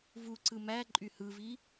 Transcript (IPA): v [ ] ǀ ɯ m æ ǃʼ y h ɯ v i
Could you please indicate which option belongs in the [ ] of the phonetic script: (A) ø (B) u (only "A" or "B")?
B